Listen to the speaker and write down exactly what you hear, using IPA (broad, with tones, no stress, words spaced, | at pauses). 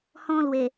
hɔ̃˦lwe˨˩